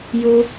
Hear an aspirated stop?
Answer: no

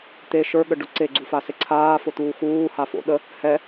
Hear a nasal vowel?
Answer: no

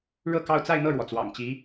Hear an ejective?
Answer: no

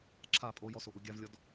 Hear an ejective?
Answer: yes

